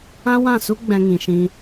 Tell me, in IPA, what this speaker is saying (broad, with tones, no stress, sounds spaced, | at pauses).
ã˦ w ã˦˨ s u˦ ɡ͡b ɛ̃˦ ŋ ĩ˧ ʃ ĩ˦